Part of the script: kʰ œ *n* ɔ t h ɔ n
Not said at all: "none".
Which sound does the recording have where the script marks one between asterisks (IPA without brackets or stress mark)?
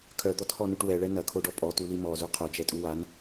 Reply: d̪